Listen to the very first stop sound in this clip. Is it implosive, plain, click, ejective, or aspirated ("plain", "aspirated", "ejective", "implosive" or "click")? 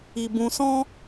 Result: plain